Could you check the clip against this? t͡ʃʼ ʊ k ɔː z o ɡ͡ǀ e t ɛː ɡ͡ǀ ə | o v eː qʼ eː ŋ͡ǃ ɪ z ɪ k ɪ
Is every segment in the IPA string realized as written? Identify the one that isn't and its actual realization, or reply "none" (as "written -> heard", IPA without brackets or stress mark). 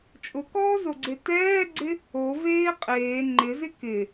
ə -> ɪ